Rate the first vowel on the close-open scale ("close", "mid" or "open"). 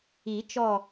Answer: close